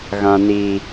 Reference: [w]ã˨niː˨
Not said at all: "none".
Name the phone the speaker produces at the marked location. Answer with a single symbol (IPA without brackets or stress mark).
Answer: ɣ